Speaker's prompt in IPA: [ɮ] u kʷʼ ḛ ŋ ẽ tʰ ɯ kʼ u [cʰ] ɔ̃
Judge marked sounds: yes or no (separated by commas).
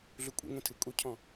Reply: yes, yes